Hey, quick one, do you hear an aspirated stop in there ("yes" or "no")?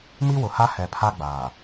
yes